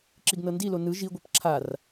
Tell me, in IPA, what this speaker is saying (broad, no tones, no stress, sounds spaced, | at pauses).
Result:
ǁ i ɡ n ɤ n d i l o n ɯ ʒ i ɡʷ ɛ p ǁʰ a r